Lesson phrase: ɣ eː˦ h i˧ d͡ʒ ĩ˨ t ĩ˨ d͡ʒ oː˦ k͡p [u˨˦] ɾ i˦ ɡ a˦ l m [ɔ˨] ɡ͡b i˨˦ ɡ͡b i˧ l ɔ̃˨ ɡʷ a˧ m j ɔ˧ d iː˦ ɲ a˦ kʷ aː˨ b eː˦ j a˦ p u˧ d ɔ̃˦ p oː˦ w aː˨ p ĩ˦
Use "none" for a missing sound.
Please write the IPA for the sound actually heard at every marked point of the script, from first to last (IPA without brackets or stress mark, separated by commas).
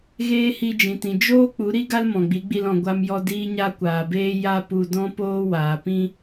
u˨˦, ɔ̃˨